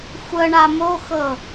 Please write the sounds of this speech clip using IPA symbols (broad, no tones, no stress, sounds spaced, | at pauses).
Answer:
xʷ ə ɳ a m o x ɤ